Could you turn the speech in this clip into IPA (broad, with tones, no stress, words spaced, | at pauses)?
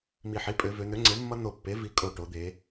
mi˨˩ħi˩˥pʼø˩˧ vø˩˧n̪ø˩˥ŋ͡ǀe˩˥ mːʌ˦˥n̪o˨˩ pːe˩˥vi˩˧kʼo˨˩ ʈo˩˧d̪e˩˧